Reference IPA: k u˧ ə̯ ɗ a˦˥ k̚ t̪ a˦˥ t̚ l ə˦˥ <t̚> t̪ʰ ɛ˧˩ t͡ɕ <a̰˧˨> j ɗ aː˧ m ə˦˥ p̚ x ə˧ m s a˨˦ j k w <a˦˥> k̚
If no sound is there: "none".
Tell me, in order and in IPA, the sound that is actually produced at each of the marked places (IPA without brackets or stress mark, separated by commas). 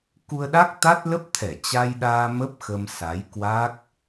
p̚, a˧, a˦˥